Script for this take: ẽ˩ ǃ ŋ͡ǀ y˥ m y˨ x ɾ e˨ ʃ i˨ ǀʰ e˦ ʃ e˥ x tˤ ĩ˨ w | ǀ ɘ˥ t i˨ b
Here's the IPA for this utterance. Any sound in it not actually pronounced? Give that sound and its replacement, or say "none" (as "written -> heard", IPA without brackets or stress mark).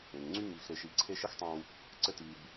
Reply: ǃ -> ŋ